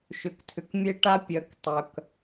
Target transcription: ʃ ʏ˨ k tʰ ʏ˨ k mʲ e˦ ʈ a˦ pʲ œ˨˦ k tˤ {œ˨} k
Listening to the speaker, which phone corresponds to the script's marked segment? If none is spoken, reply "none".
œ˨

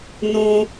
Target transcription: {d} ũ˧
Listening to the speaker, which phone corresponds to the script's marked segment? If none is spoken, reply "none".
n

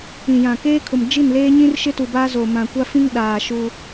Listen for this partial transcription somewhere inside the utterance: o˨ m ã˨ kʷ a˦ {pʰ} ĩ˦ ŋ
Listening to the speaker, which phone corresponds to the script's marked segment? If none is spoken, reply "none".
f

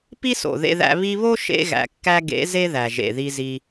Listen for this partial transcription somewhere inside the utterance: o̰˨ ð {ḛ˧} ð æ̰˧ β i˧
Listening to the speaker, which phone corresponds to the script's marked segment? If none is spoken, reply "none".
ḛ˧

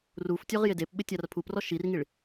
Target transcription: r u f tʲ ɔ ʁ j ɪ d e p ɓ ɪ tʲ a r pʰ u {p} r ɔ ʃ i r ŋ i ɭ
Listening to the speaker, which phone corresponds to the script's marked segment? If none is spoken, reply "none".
p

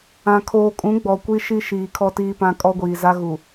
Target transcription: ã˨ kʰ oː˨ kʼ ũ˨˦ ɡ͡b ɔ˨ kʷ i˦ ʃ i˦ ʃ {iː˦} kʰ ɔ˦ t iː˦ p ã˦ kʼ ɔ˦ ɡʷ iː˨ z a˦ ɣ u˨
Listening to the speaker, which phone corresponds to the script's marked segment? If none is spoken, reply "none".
iː˨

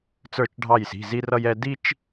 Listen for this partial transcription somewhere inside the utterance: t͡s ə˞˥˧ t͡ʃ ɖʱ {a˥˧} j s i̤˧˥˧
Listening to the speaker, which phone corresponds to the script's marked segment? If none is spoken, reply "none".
ɑ˥˧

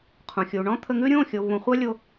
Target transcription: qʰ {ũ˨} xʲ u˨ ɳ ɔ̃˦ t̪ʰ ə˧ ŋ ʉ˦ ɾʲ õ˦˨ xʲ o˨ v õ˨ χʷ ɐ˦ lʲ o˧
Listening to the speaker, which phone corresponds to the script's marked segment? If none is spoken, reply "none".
ũ˨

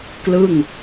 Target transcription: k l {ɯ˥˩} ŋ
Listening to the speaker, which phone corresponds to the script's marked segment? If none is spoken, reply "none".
ɯ˥˩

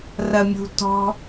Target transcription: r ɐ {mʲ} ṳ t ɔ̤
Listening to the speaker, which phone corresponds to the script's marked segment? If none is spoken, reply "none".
mʲ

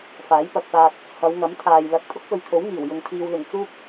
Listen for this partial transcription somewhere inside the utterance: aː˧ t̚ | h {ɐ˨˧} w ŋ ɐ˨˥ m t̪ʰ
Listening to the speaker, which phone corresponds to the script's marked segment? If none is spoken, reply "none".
ɐ˨˧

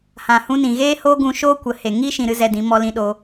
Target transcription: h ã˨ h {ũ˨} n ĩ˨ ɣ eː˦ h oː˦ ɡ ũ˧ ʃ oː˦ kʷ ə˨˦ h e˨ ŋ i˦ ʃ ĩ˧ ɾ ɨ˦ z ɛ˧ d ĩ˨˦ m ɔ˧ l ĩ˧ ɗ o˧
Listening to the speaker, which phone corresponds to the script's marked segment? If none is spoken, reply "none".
ũ˧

